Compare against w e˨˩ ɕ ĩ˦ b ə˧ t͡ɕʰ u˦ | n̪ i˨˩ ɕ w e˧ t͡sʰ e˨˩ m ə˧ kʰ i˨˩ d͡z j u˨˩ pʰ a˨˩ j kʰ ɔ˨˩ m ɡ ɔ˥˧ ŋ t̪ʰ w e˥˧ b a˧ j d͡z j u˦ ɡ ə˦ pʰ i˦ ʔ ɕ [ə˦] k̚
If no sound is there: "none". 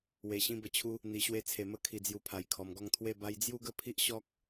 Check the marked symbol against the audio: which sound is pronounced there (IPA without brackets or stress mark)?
ɔ˦